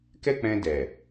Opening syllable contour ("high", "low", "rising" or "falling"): high